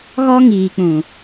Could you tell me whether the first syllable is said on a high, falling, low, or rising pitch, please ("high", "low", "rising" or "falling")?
high